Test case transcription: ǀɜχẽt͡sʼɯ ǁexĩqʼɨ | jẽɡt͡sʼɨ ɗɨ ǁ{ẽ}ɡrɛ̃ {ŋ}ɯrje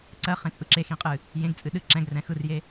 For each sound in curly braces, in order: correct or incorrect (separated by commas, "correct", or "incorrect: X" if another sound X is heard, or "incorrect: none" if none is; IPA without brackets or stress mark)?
incorrect: ɛ̃, incorrect: x